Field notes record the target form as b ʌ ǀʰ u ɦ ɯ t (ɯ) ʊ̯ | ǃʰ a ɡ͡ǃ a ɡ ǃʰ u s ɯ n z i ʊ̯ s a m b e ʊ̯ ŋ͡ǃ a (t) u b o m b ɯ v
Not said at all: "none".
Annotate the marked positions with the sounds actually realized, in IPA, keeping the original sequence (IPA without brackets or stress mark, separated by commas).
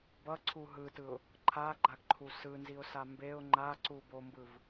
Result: ɯ, ǀ